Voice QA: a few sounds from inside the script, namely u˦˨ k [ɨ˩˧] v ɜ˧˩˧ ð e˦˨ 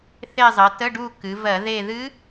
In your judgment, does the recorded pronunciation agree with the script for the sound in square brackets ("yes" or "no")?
yes